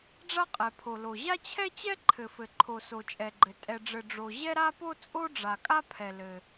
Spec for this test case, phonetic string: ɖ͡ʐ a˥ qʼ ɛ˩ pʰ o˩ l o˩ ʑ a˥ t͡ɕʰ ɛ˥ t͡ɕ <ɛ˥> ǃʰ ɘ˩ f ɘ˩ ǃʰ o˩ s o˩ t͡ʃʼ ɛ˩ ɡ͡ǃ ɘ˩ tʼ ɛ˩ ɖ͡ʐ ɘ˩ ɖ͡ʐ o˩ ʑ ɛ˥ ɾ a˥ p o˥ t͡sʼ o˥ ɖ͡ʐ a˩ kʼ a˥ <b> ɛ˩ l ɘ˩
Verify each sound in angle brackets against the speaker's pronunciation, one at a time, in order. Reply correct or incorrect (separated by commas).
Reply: correct, incorrect